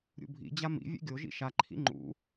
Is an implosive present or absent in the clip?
absent